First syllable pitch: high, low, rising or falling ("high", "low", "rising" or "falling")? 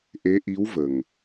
rising